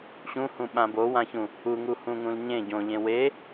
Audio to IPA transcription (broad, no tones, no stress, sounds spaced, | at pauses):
ɕ ũ h ũ ɓ ã b o w ã ç ũ | u ŋ u h ũ ŋ ũ l ɲ ẽ ɟ õ ʎ ẽ w e